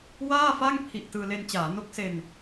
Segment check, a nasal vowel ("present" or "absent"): absent